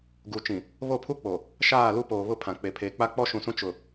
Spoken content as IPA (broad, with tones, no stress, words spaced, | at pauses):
ɡu˨ t͡ʃĩ˨ | βo˦˨pʰu˦k͡po˨ | ʃaː˦˨lu˦poː˨βʊ˦ pʰã˨k͡pe˨pʰeː˨k͡pa˦ k͡pɔ˦ʃũ˨sũ˦ t͡ʃʊ˨